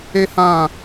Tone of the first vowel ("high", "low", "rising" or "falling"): high